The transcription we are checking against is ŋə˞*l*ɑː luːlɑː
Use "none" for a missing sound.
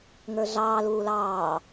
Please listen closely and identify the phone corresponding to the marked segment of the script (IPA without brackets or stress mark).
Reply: ɮ